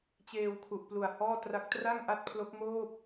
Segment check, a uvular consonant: absent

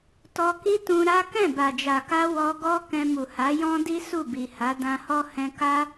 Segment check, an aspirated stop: absent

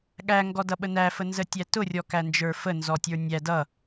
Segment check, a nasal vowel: absent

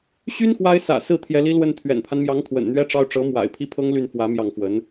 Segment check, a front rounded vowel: present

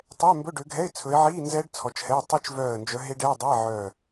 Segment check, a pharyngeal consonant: present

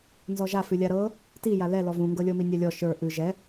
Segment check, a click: absent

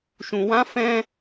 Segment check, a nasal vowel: present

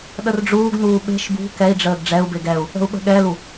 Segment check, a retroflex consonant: present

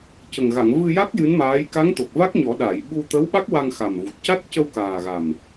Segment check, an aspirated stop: absent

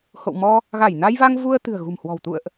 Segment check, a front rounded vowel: absent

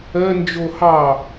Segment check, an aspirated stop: absent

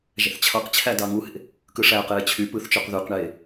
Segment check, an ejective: absent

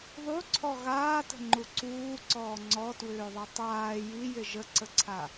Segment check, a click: present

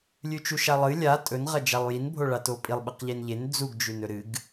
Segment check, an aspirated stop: absent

